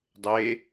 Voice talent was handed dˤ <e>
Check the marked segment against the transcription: correct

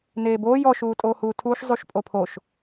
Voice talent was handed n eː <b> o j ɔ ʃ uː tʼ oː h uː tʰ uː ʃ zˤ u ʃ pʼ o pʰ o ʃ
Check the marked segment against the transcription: correct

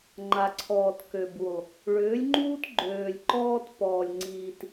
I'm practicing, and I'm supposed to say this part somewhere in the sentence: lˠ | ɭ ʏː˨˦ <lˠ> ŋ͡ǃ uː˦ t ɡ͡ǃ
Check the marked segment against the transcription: incorrect: lʲ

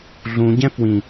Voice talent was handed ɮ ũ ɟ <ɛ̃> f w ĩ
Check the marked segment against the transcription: correct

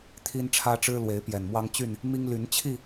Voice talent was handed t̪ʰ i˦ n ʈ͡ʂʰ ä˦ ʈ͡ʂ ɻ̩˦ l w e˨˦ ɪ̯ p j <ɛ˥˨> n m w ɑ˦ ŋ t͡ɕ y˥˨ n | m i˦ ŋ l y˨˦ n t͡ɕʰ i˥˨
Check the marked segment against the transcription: incorrect: ɛ˨˩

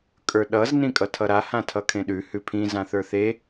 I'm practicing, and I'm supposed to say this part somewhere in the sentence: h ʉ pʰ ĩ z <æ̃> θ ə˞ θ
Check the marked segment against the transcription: incorrect: ã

